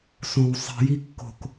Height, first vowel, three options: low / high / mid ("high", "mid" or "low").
mid